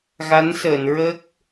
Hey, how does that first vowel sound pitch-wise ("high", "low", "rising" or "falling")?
rising